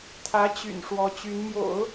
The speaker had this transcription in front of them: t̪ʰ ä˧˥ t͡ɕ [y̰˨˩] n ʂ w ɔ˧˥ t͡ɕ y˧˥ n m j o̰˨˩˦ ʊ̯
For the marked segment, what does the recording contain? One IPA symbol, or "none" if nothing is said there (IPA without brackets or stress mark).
y̰˨˩